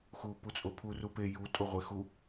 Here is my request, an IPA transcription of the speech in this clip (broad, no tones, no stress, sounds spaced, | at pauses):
x u p u t͡sʼ o pʰ u r u p e j u tʼ o ʁʷ e x u